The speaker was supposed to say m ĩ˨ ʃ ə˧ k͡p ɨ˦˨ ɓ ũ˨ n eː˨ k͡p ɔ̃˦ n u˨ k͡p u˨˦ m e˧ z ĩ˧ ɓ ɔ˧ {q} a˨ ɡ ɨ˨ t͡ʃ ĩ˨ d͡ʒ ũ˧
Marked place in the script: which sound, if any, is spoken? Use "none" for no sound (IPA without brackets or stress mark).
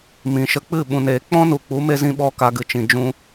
k